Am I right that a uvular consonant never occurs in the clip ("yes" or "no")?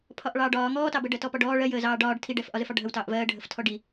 yes